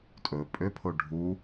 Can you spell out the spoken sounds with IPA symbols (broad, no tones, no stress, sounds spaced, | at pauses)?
tʼ ɵ pʼ ø pʰ o ɖʱ u